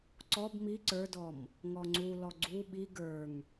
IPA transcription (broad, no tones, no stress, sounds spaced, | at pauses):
ǀ ɔ b m i ǀ ə˞ d ɔ m | ŋ ɔ ŋ͡ǀ u l ɔ ɡ͡ǀ u ɓ i ɡ ə˞ ŋ